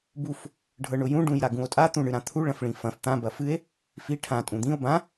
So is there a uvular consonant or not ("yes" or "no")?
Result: no